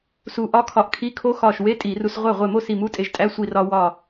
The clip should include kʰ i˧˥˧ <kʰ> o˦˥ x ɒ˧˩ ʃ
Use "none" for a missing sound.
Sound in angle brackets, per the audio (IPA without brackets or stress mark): kʰ